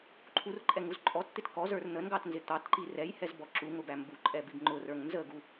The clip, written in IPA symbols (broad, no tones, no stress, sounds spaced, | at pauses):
ǃʰ u r ǃʼ ɛ ŋ u z ǃʼ ɔ t t̪ ɪ t k ɔ z ə˞ r n̪ ə n ɡ ɑ t n z ɪ t̪ ɑ t ǃ i r ɛ j h ɛ z b ɔ ǁ u ŋ ʊ b æ m b u ǃʼ ɛ b i b ŋ͡ǃ ʊ r ə˞ ŋ n z ə ɡ u